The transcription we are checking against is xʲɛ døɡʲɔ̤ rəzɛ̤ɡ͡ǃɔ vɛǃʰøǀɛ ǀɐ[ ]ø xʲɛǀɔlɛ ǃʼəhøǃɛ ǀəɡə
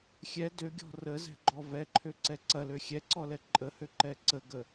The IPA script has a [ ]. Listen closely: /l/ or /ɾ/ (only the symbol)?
l